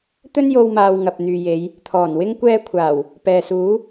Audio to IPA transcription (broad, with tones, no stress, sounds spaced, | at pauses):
t̪ ɵ˥ n j o˧ w m aː˧ w ŋ ɐ˨ p̚ n̪ yː˨ j e˨˧ j | t̪ʰ ɔː˨˩ n w ɪ˥ ŋ kʷ ɛː˥ kʷʰ aː˨˩ w | p ɛː˨ s uː˨˥